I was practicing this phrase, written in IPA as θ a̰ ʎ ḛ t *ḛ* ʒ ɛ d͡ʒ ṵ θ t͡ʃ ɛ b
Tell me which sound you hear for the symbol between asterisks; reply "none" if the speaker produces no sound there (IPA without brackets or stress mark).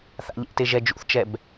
e